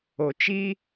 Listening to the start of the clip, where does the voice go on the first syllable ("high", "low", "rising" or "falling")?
low